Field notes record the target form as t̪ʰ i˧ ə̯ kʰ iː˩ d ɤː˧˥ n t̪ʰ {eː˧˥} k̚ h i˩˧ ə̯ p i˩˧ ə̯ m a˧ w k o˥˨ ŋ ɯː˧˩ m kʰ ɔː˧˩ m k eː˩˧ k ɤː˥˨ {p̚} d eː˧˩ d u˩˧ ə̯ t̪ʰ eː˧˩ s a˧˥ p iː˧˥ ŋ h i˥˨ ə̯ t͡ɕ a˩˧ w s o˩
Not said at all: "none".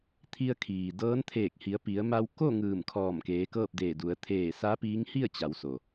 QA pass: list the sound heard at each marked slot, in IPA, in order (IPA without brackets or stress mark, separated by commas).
eː˧˩, p̚